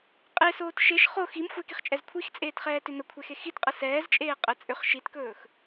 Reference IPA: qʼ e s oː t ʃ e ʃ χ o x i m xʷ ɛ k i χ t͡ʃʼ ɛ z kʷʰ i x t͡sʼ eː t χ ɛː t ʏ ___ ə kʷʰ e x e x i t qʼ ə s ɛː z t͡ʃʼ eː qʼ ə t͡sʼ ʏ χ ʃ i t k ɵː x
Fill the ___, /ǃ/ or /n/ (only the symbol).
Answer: n